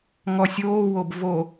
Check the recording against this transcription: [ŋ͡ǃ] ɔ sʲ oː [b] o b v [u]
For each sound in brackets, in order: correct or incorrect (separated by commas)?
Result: incorrect, incorrect, incorrect